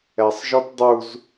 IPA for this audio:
ɛ sˤ ʒ ɔ t dˤ u z

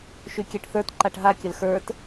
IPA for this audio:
ʃ y kʲ ɛ ʈ θ ə˞ t ǃ a ʈ ɦ a kʲ ə l x ə˞ t

